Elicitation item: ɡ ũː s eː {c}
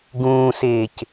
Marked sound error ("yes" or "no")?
no